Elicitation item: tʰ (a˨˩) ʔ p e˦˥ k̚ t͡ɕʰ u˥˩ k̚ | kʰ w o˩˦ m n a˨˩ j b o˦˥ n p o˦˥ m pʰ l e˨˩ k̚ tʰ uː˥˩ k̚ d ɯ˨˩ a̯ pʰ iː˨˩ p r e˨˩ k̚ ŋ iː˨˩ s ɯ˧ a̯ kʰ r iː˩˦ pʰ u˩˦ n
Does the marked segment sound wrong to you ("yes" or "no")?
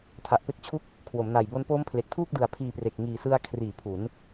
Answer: no